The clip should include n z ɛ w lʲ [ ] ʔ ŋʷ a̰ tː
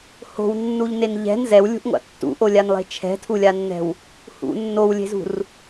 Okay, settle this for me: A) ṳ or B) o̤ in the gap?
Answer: A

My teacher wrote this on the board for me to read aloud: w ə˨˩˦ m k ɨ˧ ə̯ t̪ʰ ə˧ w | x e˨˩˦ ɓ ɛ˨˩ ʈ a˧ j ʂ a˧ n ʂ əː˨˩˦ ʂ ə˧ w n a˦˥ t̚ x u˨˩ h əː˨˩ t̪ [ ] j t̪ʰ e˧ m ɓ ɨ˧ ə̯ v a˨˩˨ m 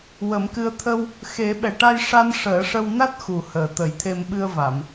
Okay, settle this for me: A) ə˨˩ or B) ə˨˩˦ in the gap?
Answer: B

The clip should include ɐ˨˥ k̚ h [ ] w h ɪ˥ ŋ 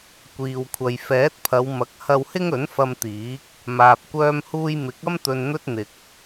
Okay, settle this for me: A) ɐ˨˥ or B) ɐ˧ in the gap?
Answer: B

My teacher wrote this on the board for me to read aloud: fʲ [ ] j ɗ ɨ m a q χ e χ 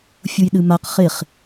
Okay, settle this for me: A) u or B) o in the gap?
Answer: A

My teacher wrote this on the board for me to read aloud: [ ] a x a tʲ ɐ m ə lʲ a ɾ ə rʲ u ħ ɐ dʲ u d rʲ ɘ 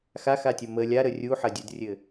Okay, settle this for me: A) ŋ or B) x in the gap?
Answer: B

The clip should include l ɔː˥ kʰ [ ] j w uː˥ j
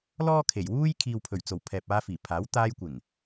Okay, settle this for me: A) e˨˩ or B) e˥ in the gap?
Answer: A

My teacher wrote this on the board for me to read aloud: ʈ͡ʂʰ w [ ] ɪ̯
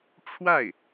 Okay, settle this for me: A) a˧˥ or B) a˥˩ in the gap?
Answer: B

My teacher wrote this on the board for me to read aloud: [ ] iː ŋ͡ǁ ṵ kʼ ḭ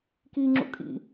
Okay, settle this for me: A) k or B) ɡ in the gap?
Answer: A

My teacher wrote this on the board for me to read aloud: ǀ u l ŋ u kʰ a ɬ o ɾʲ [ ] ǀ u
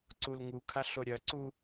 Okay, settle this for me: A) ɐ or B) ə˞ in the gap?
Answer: A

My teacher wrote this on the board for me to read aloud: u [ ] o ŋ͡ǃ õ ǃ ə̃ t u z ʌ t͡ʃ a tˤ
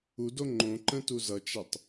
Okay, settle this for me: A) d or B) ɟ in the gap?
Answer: A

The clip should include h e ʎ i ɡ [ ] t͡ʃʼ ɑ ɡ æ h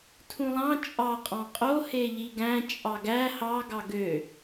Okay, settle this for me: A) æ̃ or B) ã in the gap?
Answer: A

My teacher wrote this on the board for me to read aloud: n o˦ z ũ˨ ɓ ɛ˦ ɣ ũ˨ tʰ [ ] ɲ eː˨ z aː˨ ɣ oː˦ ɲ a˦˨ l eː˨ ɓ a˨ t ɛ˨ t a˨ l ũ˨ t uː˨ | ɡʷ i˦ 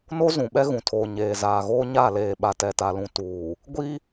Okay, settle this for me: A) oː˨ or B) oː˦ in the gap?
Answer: A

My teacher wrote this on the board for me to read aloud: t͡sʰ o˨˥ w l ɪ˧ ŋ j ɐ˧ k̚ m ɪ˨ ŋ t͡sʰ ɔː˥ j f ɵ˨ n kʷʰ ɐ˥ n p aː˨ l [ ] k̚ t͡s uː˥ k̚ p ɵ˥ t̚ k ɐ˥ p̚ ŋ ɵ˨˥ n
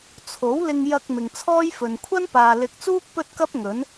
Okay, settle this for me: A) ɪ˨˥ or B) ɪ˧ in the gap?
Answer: A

